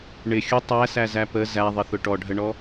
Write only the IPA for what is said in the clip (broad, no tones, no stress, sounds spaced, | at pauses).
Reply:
ɳ ɪ xʲ ʊ tˤ æ s æ z æ p ə z æ ðˤ ɪ θ ʊ ʈ ɔ ɖʱ ə ɳ ɔ